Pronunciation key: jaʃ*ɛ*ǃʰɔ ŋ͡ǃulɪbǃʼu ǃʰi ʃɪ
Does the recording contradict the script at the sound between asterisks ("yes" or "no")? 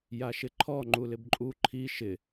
yes